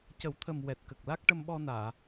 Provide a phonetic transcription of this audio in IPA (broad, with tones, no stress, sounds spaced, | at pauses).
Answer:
c ə˨˩˦ w t̪ʰ ə˨˩ m w ɛ˨˩ t̚ k ə˨˩ k̚ l a˦˥ k̚ ʈ ə˧ m ɓ ɔ˧ n aː˨˩˨